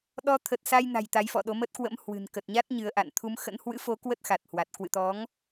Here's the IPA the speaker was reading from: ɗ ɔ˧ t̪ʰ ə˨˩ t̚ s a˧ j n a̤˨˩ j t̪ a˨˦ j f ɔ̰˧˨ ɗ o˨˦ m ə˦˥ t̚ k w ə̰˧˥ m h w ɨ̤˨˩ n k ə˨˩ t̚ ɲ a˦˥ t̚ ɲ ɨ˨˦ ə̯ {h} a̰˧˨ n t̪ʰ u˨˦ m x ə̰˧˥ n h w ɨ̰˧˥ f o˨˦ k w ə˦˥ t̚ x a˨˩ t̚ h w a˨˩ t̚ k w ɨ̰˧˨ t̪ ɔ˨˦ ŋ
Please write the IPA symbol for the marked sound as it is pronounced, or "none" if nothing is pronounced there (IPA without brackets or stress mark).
ʔ